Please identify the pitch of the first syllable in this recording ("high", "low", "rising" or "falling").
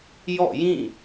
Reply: falling